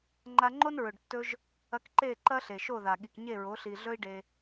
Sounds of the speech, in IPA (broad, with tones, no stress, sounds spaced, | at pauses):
ŋ͡ǃ a˧ ŋ͡ǃ o˦ n ɹ ɵ˨ ɖ tː ɵ˧ ʒ | ɐ˧ k ǃ e˦˨ ǃ ɐ˦ ɬ e˨ ʃ o˦˨ ð a˨ ɠ i˨ k ɲ e˦˨ ɹ o˨˦ ɬ i˨ ɮ ɵ˦ i̯ ɖ e˧